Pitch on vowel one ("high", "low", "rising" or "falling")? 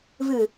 low